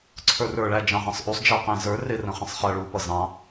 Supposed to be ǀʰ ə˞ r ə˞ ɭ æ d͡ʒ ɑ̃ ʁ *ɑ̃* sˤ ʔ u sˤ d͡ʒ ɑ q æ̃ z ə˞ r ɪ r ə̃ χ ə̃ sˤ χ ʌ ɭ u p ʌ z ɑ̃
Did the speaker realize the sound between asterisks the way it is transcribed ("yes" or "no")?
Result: yes